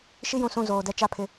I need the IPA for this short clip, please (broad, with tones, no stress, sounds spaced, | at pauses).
ʃ i˦ j ũ˨ s ũ˦˨ z oː˨ d ɛ˦ t͡ʃ a˦˨ pʰ ɪ˦